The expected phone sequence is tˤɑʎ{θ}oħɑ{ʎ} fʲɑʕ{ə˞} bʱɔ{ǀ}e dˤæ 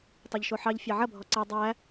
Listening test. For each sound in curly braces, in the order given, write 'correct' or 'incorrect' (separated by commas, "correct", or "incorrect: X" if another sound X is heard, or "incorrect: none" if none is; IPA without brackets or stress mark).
incorrect: ʃ, correct, incorrect: ɐ, correct